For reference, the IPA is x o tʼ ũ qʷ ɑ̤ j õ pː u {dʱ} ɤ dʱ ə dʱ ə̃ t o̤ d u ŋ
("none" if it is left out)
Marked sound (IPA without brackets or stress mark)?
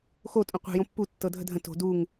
tː